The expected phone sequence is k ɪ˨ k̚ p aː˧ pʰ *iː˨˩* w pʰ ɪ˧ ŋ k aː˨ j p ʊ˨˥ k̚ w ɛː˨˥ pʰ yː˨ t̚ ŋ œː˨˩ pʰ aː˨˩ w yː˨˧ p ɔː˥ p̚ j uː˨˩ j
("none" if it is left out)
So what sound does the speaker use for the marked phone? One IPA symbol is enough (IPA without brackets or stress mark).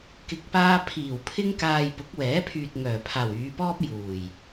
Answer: iː˨˩